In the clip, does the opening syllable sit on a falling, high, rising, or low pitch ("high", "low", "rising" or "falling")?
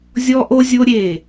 high